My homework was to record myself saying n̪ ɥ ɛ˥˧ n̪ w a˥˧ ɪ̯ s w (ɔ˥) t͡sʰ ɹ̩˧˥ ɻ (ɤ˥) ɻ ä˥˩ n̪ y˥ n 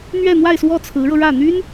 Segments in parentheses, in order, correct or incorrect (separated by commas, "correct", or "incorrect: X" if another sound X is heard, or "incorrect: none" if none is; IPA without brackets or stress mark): incorrect: ɔ˥˩, incorrect: ɤ˧